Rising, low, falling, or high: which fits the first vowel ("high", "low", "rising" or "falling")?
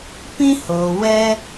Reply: high